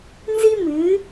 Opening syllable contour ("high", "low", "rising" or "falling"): high